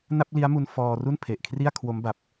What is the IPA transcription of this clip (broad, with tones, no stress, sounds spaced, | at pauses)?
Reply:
n a˥˩ p̚ l i˦˥ a̯ m u˧ n f ɔː˧ r u˥˩ n pʰ e˨˩ ʔ kʰ r i˥˩ a̯ kʰ w o˦˥ m b a˨˩ p̚